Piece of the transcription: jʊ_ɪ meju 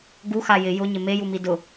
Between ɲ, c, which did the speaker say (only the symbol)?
ɲ